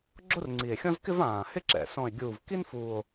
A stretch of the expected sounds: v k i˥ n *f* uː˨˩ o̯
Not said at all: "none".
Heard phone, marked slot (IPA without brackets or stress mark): f